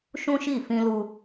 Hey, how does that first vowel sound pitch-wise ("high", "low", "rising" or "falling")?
high